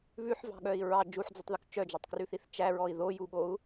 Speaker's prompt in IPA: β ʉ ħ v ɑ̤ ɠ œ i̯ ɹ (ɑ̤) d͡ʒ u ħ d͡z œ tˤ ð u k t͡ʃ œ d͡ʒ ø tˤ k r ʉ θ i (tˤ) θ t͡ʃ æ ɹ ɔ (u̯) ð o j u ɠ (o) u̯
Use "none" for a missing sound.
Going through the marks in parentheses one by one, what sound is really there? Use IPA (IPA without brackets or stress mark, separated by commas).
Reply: ɑ, none, i̯, o